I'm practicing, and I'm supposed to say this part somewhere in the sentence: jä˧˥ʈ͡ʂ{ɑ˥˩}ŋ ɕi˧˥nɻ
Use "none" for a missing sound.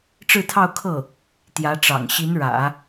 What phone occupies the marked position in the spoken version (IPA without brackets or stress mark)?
ɑ̰˨˩